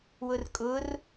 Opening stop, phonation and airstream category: ejective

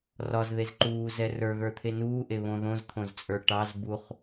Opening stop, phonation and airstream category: click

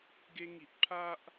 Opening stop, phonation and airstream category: plain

